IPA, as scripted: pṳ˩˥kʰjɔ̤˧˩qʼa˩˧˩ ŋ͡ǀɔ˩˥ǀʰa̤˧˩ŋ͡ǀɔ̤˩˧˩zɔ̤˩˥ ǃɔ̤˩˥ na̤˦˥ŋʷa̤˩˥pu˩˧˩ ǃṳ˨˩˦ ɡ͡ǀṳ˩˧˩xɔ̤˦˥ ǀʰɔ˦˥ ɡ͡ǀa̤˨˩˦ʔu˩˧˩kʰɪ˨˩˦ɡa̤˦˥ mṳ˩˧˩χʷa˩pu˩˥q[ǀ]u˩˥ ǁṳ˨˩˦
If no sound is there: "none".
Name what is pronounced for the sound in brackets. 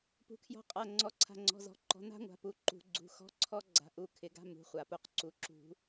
ǀ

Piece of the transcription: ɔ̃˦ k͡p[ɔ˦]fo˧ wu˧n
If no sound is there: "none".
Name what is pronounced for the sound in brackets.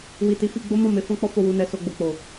ɔ˦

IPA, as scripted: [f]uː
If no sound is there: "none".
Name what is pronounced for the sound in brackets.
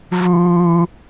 v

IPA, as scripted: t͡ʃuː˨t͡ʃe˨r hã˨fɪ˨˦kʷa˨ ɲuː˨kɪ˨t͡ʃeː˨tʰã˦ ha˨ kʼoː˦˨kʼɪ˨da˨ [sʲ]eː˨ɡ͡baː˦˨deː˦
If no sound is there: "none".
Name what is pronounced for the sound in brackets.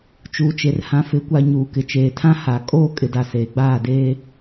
s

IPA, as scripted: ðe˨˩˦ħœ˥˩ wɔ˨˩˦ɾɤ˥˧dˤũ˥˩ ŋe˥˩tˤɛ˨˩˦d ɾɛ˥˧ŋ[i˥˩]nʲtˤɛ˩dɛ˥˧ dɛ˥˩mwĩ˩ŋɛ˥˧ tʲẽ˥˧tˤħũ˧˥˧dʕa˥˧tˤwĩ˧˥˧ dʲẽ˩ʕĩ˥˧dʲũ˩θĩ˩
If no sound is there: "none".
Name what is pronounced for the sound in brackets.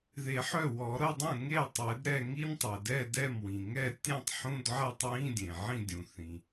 i˥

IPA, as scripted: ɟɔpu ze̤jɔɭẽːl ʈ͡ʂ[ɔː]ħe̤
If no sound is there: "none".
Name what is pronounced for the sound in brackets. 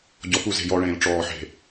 ɔː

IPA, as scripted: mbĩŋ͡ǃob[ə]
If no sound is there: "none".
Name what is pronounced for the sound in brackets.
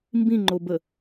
ə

